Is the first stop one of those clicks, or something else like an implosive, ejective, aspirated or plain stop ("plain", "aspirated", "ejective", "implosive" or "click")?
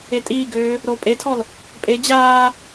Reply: ejective